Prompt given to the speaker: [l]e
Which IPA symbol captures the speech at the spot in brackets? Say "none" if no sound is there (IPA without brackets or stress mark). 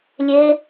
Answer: lʲ